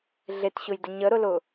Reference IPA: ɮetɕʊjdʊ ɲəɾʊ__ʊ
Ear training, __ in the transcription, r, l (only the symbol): l